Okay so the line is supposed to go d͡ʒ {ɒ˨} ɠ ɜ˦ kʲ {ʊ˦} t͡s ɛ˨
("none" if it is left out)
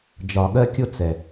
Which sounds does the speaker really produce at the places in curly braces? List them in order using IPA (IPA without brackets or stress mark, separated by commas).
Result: ɒ˨, ʊ˦